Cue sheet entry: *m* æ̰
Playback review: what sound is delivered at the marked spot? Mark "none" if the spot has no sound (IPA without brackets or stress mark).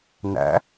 n